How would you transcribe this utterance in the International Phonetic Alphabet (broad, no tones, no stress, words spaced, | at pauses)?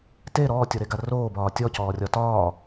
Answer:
te ɾɔːtʲɔɾeɡa roːbɒː tʲɔcɔːrʲɒ tɒː